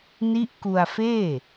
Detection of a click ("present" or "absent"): absent